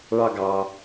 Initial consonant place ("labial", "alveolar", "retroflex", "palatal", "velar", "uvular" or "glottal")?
retroflex